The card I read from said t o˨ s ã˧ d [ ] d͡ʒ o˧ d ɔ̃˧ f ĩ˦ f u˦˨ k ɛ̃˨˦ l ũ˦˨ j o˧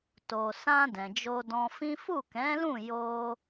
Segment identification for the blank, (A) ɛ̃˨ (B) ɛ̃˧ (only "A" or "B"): A